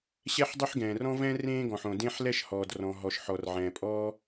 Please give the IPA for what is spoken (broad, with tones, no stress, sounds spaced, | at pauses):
ɕ ɛ˥ ħ dˤ ɵ˥ ħ ɡ ɛ̃ː˩ r ɔ̃˥ v ɛ̃˥ r ẽː˥ ɡ ɔ̃˩ ħ õ˩ d ẽ˥ ħ l ɛ˥ ʃ h ɔː˩ d r ɔ̃˩ ɦ ɔ˩ ʃ ħ ɔ˩ r ʕ ɛ̃ː˩ pʼ ɔː˥